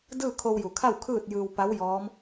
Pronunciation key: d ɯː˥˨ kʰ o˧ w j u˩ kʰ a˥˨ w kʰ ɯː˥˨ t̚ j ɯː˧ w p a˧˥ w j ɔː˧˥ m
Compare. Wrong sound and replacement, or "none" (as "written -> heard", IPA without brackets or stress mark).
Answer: none